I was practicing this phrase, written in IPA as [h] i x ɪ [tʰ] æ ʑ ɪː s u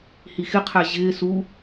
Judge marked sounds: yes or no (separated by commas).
yes, no